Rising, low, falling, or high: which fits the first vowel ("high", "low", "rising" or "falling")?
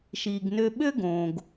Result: low